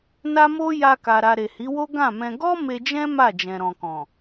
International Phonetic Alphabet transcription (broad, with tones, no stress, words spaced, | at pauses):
na˦mo˦ ja˧ka˨ɾa˨ ɾe˨hi˨˦wo˦ ɡã˦˨mɛ̃˧ ɡɔ˦ me˧d͡ʒɛ̃˦ ma˦˨d͡ʒɛ̃˨ɾɔ̃˨kɔ̃˨